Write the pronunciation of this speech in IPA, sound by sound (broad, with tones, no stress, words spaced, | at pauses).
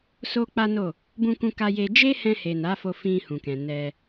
so˦k͡pa˦no˦˨ | bũ˧kũ˧ka˧je˧ d͡ʒe˦hɛ̃˧he˨ na˨˦fo˧ fĩ˧hũ˨kɛ̃˨ nɛ˧